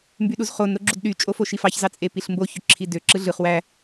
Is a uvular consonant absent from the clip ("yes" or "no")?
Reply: no